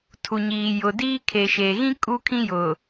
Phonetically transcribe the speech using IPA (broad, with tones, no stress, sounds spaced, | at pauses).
tʰ u˨ ɲ iː˨ j ʊ˨ d iː˦ kʰ e˨ ʃ e˨ ɣ ĩ˦ kʼ u˦ kʰ ĩ˦ j ʊ˨